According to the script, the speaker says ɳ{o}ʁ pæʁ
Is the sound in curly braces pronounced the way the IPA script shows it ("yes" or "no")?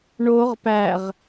yes